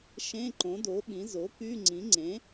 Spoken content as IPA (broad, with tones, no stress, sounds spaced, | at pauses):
ʃ ẽ˧˥˧ ǃ õ˩˥ d o˩˥ ɓ ĩ˩˥ z o˩˥ k y˧˥˧ ŋ͡ǀ ĩ˩˥ ŋ͡ǀ ẽ˩˥